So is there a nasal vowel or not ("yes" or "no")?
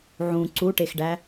yes